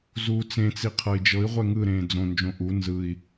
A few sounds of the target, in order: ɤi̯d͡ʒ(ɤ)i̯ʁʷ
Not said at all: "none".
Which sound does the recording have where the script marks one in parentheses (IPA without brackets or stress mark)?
ɤ